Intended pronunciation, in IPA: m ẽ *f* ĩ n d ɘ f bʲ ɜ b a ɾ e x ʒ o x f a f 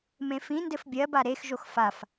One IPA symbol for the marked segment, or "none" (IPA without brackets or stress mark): f